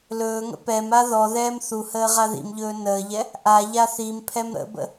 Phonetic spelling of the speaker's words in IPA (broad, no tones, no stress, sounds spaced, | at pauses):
l ɵː ŋ ə̰ p ɛ m a ð ɔ ð ɛː m θ u h əː ʁ a ð ḭ m ʎ ɵː n əː ʎ ɛ | ʔ a ʎ a θ i m pʰ ɛ m ɾ ə̰ b ə̰